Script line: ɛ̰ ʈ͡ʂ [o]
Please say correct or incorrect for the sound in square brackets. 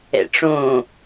incorrect